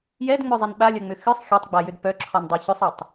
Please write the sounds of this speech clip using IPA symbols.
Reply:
j ɛ d ŋ͡m œ zˤ ɛ n ɓ a lʲ œ ŋ͡m ʏ x ɨ sˤ xʲ o tˤ ɡ͡b a j ʏ d p œ ǁʰ ɔ n dˤ ɛ ç ʏ sˤ œ tˤ

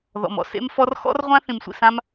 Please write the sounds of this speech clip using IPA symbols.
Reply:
ð ɔ̰˩ m ɔ̰˩ s ḛ˥ m f ɔ˥ r x ɔ̰˥ r ʁʷ ã˥ θ ĩ˩ m sʷ ḭ˩ s ã˥ m

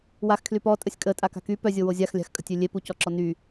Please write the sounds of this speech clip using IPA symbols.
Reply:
w a x kʰ l y p ɔ tʼ ə sʲ kʼ ə tʼ a k a̤ k y p œ zʲ o w o zʲ a x lʲ a̤ x kʼ ə̤ tʲ ø lʲ e p u c ɔ ǁ ɔ n y

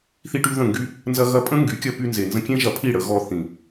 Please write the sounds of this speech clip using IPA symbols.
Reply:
θ i˦ ʈ y˦ ð ə̃˦˨ ŋ ɡ y˦ | n z ɐ˧ ɣ ɐ˧ pʼ ə̃˦ ŋ ɡ y˨˦ kʲ ɐ˧ p y˧ n z e˨ n z ə̃˧ kʲ ẽ˦ ʒ ɐ˧ pʰ i˦˨ ɽ ə˧ ɣ ɔ˧ θ ĩ˨

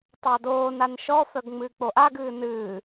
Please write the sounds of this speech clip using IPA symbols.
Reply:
tˤ ɑ d oː n a n ʃ ɔ f œ ɡ ŋ͡m ɨː k͡p o ʔ a ɡ ɨː n ɨː

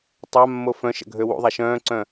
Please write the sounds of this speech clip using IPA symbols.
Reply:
tˤ a mː o f œ̃ ʃ ə̰ ɡʱ ø w ṵ ðˤ a ʃ œ̃ː ǀ œ̃

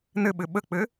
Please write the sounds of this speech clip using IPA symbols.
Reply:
n ɘ ɓ ɘ ɓ ə k͡p ɘ

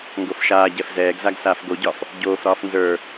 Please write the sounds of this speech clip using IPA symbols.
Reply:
ŋ ɡ o f ʃ aː ɟ ɛ f z ɛː ɡ z a ɡ s aː f ɡ o ɟ ɒ f | ɟ oː f ɾ ɒː f n z ə˞

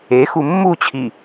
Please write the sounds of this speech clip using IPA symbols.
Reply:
e x u mː u t͡ɕʰ i

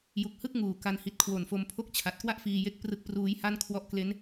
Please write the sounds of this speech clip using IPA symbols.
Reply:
j u˨˩ k̚ h ɯ˥˩ k̚ ŋ uː˨˩ k a˧ n h i˨˩ t̚ kʰ w o˨˩ n f o˧ m pʰ o˥˩ k̚ t͡ɕʰ a˨˩ t̚ k w a˥˩ ʔ f iː˧ j e˦˥ k̚ p r ɯ˦˥ k̚ p r uː˦˥ j h a˥˩ n kʰ w ɔ˦˥ ʔ k l e˦˥ n

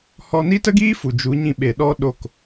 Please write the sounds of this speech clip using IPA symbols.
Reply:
h ɔ˧ n i˦ t ə˦ ɡ iː˦ f u˨ d͡ʒ u˨˦ ɲ ĩ˧ ɓ e˨ ɗ ɔ˧ ɗ o˦˨ k

